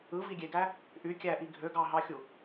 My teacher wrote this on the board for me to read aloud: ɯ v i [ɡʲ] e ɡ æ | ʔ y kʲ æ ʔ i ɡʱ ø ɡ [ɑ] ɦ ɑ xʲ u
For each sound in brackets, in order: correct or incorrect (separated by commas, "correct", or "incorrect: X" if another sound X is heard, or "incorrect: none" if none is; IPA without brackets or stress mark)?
correct, correct